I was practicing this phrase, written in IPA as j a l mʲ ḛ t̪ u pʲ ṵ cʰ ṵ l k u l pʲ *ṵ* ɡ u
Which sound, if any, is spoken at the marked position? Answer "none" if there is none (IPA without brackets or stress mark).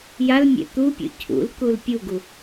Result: u